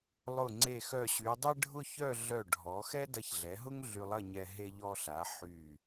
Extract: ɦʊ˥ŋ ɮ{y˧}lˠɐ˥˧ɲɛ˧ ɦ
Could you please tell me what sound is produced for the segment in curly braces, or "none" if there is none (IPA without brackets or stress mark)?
y˧